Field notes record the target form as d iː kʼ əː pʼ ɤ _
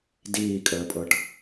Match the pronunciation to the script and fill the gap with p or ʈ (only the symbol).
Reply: ʈ